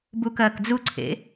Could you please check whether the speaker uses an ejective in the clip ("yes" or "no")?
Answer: no